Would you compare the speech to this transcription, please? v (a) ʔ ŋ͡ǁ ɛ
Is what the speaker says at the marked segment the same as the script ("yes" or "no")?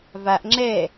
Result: yes